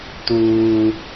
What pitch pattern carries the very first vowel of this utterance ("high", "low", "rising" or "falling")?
high